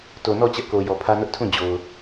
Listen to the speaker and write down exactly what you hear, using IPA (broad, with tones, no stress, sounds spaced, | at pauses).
t o˨ n ɔ˦˨ t͡ɕ ɛ˦ ʔ k o˨ j ɔ˨ pʰ ä˦ n ʊ˦ ʔ tʰ ũ˦˨ d͡ʑ o˨ ʊ̯